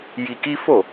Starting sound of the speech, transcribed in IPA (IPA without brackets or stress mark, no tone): j